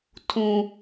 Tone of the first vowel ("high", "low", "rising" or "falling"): high